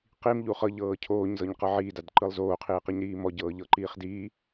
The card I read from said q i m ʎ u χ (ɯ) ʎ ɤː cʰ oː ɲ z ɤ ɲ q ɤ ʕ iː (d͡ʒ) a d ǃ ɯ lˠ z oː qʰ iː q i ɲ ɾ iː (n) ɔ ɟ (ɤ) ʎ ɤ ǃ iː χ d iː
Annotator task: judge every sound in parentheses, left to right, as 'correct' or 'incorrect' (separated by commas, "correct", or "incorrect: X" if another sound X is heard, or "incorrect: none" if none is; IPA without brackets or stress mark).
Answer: incorrect: ɤ, incorrect: d, incorrect: m, incorrect: ɤː